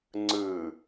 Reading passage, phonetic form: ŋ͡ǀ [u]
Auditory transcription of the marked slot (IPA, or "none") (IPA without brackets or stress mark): ɯ